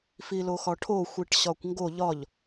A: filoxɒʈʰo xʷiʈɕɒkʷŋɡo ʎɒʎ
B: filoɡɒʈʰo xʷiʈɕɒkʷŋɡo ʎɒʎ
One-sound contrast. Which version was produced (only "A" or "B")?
A